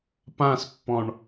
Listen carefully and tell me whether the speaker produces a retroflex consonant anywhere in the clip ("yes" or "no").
yes